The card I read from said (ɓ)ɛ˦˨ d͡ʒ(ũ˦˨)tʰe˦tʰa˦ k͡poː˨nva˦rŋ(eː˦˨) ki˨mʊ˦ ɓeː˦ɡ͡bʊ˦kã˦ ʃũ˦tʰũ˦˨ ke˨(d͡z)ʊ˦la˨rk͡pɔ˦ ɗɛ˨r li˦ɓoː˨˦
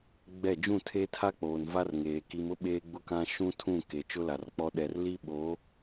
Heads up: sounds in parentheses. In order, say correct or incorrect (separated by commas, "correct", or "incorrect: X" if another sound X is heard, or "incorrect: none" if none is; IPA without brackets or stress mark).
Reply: incorrect: ɡ͡b, correct, incorrect: eː˨, incorrect: t͡ʃ